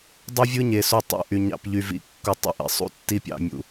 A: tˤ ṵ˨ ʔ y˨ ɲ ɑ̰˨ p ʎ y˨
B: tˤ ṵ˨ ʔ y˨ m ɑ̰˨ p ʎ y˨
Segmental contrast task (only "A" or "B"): A